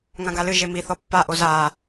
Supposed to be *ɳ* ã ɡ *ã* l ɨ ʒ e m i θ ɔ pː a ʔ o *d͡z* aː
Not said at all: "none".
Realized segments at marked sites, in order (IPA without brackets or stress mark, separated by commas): ŋ, a, z